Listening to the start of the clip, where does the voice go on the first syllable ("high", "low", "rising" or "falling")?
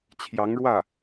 rising